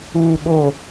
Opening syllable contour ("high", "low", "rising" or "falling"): low